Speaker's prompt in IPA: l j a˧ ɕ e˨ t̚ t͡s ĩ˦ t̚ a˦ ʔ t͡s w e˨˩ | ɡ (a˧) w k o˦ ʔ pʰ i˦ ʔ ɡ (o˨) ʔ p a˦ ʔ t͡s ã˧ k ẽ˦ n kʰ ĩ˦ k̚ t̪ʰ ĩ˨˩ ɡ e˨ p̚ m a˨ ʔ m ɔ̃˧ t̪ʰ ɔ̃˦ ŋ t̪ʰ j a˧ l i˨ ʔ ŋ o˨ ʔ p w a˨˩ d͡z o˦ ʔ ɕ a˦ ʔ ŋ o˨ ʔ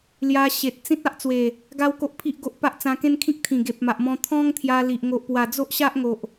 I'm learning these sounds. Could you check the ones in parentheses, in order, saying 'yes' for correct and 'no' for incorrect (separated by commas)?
no, no